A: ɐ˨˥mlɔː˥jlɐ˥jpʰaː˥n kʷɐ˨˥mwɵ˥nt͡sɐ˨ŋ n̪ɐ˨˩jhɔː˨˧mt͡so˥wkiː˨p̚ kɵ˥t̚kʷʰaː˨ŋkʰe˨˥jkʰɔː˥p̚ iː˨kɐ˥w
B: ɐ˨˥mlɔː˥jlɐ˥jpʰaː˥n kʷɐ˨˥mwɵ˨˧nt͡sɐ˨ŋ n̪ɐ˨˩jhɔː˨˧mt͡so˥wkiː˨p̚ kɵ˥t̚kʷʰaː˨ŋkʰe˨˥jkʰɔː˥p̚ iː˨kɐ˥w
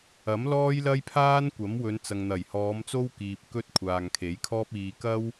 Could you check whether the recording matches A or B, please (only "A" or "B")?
B